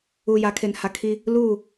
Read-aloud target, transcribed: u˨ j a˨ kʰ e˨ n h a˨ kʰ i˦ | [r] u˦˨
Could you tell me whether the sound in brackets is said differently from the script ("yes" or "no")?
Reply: yes